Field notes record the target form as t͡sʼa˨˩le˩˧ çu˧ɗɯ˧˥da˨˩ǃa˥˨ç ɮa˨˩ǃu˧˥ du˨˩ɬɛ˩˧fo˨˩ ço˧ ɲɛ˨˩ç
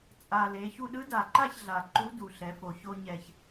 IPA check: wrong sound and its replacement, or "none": none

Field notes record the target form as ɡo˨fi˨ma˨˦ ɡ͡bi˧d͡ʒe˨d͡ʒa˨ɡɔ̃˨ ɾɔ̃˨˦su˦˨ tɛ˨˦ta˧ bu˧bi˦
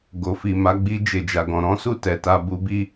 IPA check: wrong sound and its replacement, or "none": none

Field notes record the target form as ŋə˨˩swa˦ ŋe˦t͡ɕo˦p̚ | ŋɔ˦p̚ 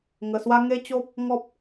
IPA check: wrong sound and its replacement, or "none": none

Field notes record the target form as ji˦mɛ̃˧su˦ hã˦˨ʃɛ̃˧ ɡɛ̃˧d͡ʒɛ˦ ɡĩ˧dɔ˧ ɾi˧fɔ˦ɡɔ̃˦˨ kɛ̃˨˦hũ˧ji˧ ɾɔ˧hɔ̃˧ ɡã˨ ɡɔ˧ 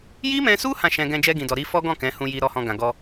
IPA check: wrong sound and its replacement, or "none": none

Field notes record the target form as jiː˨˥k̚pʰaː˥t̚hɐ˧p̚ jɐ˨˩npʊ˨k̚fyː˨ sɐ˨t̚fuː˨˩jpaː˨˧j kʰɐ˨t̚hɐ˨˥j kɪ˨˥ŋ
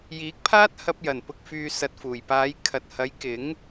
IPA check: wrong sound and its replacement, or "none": none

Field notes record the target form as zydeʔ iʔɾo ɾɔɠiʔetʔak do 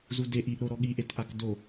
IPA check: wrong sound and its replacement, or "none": y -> u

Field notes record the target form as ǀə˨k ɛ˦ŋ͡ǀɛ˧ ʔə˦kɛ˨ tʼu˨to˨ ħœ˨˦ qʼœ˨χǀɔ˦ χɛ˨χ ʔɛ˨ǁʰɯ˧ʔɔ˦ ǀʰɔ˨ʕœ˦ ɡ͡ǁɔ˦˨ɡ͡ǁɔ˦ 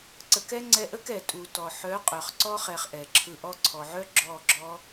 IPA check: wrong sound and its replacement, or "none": o˨ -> ɔ˨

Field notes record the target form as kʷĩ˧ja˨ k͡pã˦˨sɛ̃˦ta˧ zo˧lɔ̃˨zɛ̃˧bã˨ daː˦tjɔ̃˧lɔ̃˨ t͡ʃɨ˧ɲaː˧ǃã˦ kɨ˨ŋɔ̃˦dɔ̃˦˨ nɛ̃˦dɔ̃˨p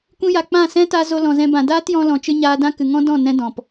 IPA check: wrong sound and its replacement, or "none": ǃ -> d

